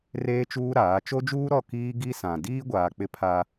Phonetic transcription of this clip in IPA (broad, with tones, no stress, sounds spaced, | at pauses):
r eː˦ t͡ʃ uː˦ ɾ aː˨˦ t͡ʃ o˦ d͡ʒ uː˦ ɾ ɔ˦˨ k iː˦ ɡ i˦ s ã˨ d iː˦ ɡʷ aː˨ k͡p ɪ˦ pʰ a˦